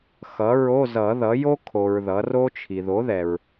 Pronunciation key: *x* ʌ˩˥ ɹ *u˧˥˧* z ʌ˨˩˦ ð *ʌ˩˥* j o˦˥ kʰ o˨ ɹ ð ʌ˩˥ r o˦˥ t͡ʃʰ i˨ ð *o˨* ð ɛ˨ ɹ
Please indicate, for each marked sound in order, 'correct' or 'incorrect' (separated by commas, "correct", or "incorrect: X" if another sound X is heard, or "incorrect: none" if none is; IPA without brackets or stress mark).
correct, incorrect: o˧˥˧, correct, incorrect: o˩˥